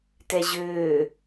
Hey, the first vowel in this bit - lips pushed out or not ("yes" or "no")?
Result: no